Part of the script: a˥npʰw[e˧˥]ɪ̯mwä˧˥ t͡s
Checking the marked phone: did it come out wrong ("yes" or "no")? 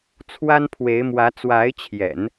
no